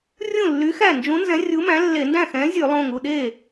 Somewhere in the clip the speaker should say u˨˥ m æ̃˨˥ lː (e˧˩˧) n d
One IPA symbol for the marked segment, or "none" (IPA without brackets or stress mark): e˧˩˧